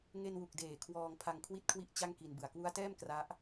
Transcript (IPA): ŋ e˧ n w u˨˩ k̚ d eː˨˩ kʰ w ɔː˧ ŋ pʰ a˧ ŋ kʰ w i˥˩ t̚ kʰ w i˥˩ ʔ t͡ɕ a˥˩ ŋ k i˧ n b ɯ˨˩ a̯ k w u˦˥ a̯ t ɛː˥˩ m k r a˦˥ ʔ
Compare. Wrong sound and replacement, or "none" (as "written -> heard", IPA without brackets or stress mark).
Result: none